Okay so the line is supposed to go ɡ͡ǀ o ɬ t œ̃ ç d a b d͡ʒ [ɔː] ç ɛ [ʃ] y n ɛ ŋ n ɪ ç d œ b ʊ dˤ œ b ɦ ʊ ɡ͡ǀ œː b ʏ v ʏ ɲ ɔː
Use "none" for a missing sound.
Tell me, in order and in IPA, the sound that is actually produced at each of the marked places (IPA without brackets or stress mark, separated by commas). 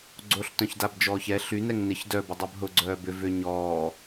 ɔː, ɬ